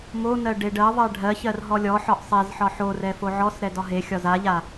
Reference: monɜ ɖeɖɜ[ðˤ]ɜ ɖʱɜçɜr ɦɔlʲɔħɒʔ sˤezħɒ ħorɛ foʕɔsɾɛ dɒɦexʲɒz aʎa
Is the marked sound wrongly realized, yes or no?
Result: no